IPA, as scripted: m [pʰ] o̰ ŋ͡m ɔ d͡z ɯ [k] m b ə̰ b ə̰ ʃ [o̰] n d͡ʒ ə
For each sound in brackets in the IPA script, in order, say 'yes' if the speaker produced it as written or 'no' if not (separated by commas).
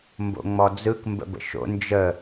no, yes, yes